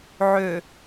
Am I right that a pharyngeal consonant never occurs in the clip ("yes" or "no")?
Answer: no